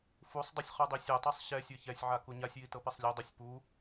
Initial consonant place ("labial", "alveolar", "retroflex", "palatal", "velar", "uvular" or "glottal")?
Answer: labial